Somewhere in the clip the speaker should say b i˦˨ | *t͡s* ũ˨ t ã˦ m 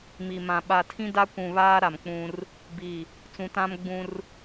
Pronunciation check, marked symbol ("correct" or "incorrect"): correct